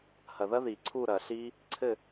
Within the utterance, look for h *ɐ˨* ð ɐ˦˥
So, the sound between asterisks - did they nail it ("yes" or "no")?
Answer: yes